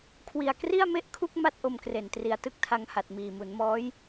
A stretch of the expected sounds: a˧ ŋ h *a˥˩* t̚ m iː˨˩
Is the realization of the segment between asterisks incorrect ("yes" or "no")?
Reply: yes